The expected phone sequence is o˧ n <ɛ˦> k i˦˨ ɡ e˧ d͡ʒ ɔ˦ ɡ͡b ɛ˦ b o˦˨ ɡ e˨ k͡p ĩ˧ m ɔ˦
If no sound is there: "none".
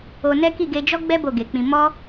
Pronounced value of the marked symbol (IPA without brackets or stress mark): ɛ˦